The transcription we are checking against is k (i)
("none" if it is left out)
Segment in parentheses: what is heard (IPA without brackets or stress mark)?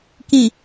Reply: ĩ